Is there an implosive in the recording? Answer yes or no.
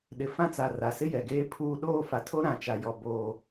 yes